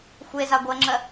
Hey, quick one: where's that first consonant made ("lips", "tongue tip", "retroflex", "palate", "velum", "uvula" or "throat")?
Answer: velum